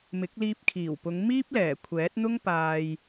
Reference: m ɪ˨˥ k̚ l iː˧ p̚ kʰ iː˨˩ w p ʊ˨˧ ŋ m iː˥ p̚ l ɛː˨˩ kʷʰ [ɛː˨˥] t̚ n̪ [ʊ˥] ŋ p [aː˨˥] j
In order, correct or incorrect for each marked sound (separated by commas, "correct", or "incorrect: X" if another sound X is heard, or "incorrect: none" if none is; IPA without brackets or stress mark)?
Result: correct, correct, incorrect: aː˧